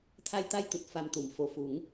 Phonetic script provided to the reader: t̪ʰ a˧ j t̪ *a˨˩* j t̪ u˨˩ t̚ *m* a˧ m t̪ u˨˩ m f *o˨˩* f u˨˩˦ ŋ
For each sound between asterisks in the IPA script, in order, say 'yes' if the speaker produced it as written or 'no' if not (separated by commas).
no, no, yes